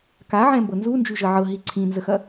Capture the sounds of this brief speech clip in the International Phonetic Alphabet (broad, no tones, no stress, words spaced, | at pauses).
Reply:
kaʕɛ̃mbɤ nzund͡ʒyʒə ʕɤɦi ǀʰĩnzəxɐ